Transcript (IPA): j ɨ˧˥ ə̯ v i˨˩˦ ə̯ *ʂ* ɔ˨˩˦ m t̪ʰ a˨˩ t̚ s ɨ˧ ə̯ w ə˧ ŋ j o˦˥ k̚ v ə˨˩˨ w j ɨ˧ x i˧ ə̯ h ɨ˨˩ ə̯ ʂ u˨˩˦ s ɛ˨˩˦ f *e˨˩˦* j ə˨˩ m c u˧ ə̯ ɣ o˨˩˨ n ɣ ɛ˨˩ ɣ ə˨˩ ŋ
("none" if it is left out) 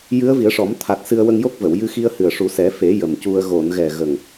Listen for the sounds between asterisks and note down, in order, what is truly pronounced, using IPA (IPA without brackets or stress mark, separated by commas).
ʂ, e˨˩˦